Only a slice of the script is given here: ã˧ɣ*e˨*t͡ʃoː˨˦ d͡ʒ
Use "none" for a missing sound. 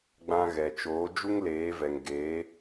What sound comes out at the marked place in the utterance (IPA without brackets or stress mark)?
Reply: ɛ˨